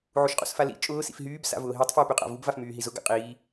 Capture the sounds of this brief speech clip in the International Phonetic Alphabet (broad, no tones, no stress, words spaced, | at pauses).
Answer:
ʕuʃqʼṵsfalḭ t͡ʃʼʊː sḭfɦyːb sa̰vʊːɦitˤ fjupyqʼa̰vub vafmyːɦizʊ ɡa̰qʼiː